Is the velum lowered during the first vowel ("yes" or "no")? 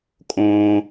yes